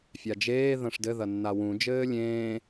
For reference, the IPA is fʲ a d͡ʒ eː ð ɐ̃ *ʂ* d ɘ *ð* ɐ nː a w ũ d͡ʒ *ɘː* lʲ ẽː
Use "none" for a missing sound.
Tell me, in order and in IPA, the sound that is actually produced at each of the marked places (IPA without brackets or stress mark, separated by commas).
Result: ʂ, ð, ɘː